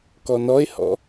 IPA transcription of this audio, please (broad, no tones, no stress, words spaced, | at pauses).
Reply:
kɔnɔe̯hɔ̰